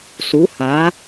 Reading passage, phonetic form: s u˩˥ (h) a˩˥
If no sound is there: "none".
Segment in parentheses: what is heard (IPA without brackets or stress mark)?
h